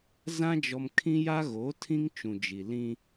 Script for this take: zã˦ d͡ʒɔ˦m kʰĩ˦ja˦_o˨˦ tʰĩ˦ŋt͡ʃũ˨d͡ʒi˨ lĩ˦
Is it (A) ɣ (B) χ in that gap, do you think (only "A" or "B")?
A